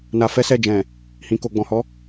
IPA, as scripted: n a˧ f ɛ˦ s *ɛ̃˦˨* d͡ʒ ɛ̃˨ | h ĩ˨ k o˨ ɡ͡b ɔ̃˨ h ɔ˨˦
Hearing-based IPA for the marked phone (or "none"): ɛ˦˨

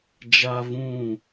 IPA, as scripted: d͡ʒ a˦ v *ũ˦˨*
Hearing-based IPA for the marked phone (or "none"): ũ˦˨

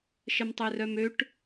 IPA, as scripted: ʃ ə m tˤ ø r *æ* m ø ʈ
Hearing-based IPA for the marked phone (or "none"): œ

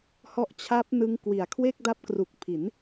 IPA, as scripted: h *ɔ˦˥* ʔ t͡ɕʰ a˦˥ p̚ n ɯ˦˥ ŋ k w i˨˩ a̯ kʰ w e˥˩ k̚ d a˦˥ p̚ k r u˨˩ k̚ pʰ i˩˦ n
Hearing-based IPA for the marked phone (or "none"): ɔ˦˥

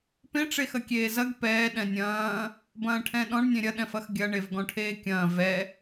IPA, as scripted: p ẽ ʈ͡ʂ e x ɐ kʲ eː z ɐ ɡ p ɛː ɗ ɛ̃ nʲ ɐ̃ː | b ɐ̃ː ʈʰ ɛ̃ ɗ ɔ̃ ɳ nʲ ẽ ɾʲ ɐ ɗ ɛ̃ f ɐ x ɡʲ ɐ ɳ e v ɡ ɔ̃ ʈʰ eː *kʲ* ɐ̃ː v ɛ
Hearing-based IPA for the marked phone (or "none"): kʲ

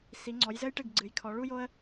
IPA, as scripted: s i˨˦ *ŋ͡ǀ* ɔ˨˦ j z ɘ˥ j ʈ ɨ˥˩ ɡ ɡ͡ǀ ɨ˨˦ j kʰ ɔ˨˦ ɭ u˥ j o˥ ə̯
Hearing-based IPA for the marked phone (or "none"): ŋ͡ǀ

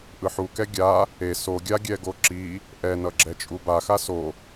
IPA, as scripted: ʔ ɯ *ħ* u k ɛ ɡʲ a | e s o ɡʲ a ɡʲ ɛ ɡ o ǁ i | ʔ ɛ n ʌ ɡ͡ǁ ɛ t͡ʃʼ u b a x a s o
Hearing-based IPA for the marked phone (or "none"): ħ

